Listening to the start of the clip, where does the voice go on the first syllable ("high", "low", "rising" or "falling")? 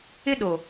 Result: high